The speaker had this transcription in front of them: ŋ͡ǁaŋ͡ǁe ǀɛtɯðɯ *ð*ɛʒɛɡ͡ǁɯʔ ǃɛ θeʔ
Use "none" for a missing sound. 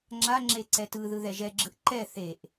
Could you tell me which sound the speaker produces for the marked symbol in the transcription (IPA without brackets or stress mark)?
ð